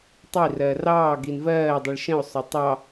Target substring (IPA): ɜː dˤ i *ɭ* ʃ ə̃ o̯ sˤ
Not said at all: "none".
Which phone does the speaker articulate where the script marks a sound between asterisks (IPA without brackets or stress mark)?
ɭ